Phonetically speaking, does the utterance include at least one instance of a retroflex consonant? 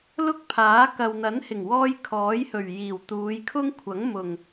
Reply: no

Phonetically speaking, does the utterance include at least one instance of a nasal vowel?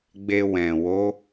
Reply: yes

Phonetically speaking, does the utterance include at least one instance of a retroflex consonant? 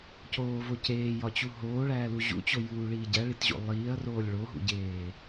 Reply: yes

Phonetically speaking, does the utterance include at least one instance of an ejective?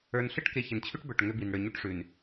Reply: no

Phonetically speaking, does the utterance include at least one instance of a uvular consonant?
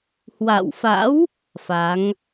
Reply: no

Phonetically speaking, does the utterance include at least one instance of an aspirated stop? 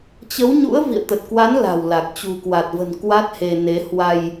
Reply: no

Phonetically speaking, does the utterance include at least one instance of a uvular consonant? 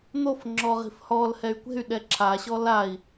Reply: yes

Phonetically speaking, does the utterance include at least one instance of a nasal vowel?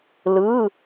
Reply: no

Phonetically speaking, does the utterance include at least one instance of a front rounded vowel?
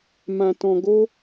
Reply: no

